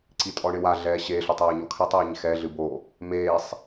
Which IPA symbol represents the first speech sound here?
ǀ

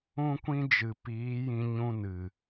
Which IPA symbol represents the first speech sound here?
ũ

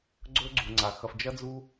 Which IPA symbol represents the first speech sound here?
ɡ͡ǀ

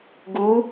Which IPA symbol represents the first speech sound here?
ɡ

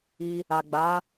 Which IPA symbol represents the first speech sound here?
i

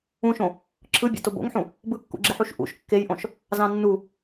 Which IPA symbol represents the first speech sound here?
ũ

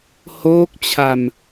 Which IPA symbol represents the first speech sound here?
h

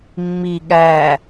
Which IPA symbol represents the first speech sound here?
mː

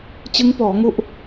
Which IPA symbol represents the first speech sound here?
t͡ɕ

